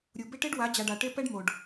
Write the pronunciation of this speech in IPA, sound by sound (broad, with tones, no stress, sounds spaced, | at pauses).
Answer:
ɾʲ u˨ b ɪ˦ ʈ e˦ ɖ w a˨˦ d͡ʑ a˨ ɖ a˨ ʈ e˦ p ɛ˦ ɖ m o˨ ɖ